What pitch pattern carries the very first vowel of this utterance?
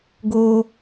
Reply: high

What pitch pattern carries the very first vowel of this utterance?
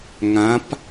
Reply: rising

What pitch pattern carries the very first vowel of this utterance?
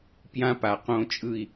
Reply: high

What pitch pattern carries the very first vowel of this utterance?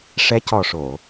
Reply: rising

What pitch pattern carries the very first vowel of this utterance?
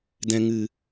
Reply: low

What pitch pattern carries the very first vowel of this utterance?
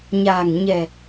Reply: low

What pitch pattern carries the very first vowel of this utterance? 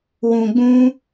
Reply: low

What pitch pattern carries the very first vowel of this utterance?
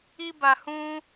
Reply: high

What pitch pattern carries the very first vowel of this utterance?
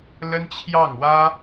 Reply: high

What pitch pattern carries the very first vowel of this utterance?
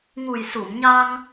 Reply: low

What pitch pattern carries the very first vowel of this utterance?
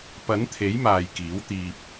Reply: rising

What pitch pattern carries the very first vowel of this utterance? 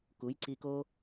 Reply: rising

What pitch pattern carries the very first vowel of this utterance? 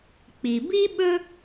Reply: low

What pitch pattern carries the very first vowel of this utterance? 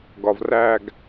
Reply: low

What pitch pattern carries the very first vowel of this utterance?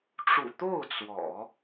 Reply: low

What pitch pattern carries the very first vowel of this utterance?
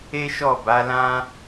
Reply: high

